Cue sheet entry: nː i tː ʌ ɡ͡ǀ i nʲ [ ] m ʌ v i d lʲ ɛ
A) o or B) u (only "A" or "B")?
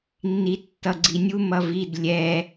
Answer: B